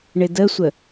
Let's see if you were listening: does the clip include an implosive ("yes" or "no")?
no